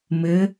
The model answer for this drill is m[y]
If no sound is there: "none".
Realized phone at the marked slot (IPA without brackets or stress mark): ɪ